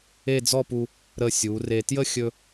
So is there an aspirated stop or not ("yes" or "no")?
no